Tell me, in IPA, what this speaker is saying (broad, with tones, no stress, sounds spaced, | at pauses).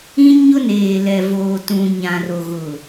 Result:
ĩ˦ ɲ ʊ˦ n eː˨ l ɛ˨ v oː˨ t ũ˨ ɲ ã˨ r o˨ ɣ ʊ˨